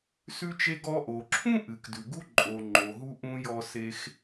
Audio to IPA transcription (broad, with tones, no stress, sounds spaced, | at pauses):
s ʉ˧ t͡ʃ e˧ ɡ ɔ˧ ʔ o˩ ǁʰ ũ˥ ʔ ɨ˩ k d ʉ˩ ɡ u˥ ǃʼ o˩ ŋ͡ǃ o˩ ɦ u˧ ʔ ũ˧ j ɔ˧ s e˧ x